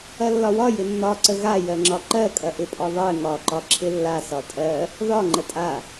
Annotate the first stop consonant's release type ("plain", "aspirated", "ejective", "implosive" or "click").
click